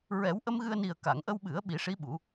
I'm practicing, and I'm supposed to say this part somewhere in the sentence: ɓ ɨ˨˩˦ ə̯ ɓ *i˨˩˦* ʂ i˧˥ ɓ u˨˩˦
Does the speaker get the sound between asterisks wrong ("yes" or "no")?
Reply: no